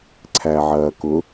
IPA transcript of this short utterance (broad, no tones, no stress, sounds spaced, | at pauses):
ǀʰ æ ʕ ɐː k ʊ